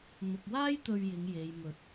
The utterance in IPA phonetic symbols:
n̪ ʊ˨ k̚ w aː˥ j t̪ ɵ˧ ɥ j ɪ˨˧ ŋ j e˨ j m ɵ˨˥ t̚

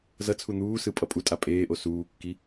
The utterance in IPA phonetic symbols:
z ʌ t͡sʰ u n̪ uː s ɯ pʼ ʌ pʼ u tʼ a pʼ eː ʔ o s uː kː i

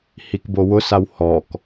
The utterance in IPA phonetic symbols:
h i k b o w ʊ s a w h ɔ k

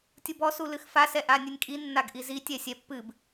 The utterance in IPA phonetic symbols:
tʲ u b ɔ s u l ɨ x f a s ɛ ʔ a nʲ ɨ nʲ kʼ i nː a ɡ ʔ i z i tʲ ɛ sʲ ɛ pː ɨ b

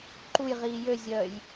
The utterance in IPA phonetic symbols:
ǃ u j ʁ iː j ø zʲ œː j

